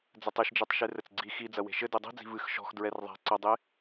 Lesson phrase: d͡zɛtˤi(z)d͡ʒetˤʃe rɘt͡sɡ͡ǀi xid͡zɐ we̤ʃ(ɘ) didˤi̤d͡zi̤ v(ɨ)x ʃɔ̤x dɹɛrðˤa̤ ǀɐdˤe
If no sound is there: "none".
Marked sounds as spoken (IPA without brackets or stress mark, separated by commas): ʃ, ɘ, ɨ